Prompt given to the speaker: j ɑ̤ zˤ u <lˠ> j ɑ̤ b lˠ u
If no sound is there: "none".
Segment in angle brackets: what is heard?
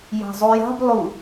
none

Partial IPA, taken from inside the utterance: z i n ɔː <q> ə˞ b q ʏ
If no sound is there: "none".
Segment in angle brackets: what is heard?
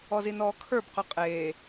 kʰ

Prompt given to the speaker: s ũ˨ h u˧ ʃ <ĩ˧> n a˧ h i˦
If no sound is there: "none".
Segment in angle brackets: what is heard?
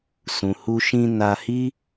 ĩ˧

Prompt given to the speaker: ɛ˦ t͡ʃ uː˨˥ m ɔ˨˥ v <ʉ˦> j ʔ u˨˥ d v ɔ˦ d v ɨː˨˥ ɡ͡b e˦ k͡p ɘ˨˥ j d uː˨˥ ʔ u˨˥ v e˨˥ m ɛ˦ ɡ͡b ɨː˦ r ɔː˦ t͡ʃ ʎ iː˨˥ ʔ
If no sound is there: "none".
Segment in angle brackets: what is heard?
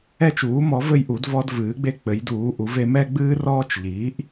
ɘ˦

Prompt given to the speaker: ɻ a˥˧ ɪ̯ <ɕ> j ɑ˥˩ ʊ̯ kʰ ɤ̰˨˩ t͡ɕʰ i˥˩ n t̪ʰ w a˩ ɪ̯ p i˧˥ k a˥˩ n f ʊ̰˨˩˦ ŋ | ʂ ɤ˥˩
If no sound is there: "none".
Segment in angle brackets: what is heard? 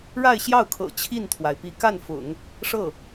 ɕ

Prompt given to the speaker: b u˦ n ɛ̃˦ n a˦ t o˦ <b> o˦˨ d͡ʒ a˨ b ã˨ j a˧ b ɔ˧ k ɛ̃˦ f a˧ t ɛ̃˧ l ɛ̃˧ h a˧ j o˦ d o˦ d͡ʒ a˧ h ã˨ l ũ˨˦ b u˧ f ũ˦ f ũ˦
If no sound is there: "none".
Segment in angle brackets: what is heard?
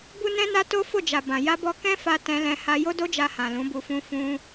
f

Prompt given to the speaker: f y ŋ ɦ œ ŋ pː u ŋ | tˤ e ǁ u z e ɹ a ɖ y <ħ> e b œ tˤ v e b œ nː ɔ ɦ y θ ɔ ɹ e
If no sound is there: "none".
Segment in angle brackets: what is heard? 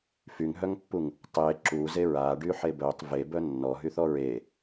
ħ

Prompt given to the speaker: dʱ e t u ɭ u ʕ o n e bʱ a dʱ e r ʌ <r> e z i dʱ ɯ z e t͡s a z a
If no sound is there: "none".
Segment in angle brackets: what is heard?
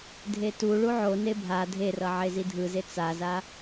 ʕ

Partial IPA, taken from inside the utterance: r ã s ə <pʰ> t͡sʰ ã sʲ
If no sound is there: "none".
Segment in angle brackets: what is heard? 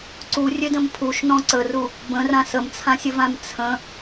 m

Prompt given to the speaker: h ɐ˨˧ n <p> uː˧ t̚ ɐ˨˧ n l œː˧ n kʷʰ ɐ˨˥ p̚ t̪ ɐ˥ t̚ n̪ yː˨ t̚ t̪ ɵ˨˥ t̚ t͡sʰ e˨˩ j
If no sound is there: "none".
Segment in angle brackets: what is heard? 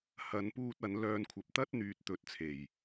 p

